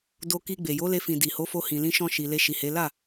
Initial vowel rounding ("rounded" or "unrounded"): rounded